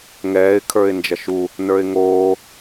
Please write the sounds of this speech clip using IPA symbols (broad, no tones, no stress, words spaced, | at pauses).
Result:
ŋɛːɪ̯ kʰə˞ɪ̯nd͡ʒɐʃu | nə˞ɪ̯ŋoː